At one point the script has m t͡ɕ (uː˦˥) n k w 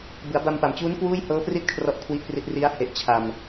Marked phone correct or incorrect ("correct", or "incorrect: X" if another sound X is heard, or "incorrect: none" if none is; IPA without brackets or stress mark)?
correct